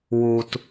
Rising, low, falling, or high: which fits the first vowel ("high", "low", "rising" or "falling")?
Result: high